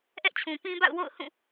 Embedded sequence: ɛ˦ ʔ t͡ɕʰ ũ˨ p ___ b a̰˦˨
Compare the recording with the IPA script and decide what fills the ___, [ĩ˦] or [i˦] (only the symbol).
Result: ĩ˦